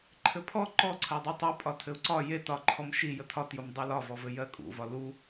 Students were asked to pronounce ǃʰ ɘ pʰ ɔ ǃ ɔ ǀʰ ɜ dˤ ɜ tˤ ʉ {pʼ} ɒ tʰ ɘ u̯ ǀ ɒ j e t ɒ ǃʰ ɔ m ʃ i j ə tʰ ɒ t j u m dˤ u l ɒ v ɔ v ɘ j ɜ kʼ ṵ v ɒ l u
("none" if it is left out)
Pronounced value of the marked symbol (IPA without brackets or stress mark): pʼ